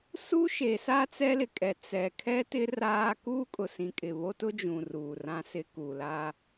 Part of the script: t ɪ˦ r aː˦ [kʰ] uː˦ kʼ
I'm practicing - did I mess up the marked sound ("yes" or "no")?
yes